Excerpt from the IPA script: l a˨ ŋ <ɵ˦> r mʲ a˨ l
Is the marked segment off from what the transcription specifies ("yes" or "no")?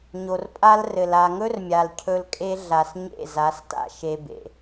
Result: no